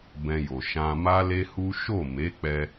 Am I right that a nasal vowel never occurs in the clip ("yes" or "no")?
no